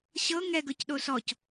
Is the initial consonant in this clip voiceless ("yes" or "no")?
yes